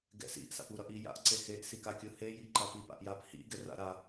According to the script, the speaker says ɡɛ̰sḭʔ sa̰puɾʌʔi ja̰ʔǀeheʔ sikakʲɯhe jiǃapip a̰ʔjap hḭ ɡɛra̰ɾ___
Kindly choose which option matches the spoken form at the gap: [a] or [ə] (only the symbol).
a